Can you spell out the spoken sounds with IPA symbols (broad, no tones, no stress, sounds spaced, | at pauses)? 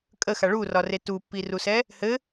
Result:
kʼ ə x a ɭ u r ɒ r e t u pː i r u s ɛ | h ɘ